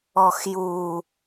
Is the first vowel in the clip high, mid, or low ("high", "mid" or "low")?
mid